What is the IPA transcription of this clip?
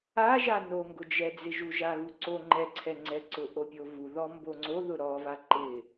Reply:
a ʒ a n o ŋ ɡ ʊ d͡ʒ ɛ d͡z ɪ ʒ u ʒ a ɣ u ǀ o ŋ͡ǃ ɛ ǀʰ ɛ ŋ͡ǀ ɛ ǀ ʊ ʔ o pʲ o v u ð ɔ m b o ŋ͡ǀ o ð ʊ ɾ ɔ v a ǃ ɪ

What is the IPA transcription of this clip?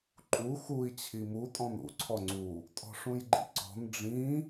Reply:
ǃʼ u x u i̯ t͡ɕʰ i m u tʼ ɔ̃ n ṵ ǀʰ ɔ ŋ͡ǀ u | tʼ ɔ̤ ʂ ũ j ɡ͡ǃ ḭ ǀ ɔ̤ n ɖ͡ʐ ĩ

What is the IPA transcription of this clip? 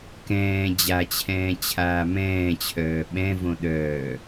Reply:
k ɛ̃ː d͡ʑ a t͡ɕʰ ɛ̃ː t͡ɕʰ aː m ɛ̃ː t͡ɕʰ œː ɓ ɛ̃ v õ ɗ œː

